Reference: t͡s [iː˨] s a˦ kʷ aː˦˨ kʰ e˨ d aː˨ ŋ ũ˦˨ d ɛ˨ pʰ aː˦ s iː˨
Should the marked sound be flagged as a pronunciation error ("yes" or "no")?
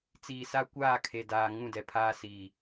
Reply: no